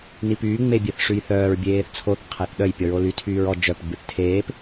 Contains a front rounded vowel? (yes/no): yes